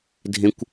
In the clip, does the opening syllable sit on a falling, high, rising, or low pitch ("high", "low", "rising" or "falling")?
high